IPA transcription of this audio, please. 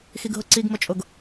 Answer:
xiɡɦʊǀiɡ mʊt͡ʃʼʊɡ

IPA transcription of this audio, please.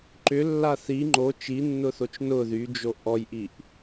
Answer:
ǃʏlːa θi ŋ͡ǃo t͡ʃinːʊθot͡ʃ nʊ ðyd͡ʒo ʔɔjʔiʔ

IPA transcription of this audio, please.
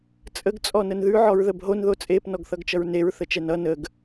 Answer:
t͡sʼəɡ t͡sʼɔnənðʉ ʕɔɹðəbɦon ðot͡sʼep nɔɡθʌɡt͡ʃʌɹneɹ θət͡ʃɛnʌ nəɡ

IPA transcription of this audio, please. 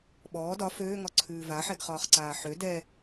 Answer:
ɓɔː dɒ føːŋɒǀʰʉː vaħɛɡχɒːχǀaː ħø dɛ

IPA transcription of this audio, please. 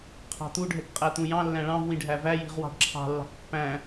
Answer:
qʰɑ̤t̪u ɖʱɛkqʼæt̪ũjɑ̃ lːæ̃ɭɑ̃v wĩɖʱævæ ji̤ʁwɑ̤ɖǁʰɑ̤ lːɑ̤kpːæ̃

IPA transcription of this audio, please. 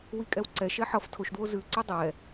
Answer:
wikʼɛwǀɛʃɛ ħʌf tʰoʃdwo zʉǀɛ dˤɛ

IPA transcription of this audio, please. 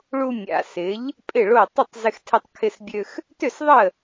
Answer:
ɭu˧mʲa̰˩sɪ˩˥ʎ | pʼɪ˥˩ɭo˥˩ tˤʏ˥˩tˤzɪ˧xtʰɛ˧tˤ kʰɪ˧sbʲø˧x | tʏ˥˩sðˤə˥˩

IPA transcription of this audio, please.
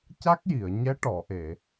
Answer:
ca˦˥k̚ji˨˩˨ə̯ ɲɛ˧˥ʈɔ˨˩˨ʔe˨˩˨

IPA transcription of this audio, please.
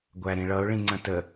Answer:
ɡʷæɾĩɭʌʊ̯ ɭĩŋ͡ǀə̃tə

